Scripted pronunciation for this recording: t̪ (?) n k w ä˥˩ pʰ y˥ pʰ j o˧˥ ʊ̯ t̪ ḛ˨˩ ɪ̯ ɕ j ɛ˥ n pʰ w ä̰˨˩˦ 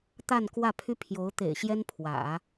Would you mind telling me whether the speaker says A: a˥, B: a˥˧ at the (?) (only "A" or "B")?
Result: B